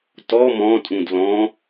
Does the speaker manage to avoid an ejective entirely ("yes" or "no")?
no